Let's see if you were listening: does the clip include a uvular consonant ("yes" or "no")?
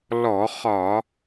yes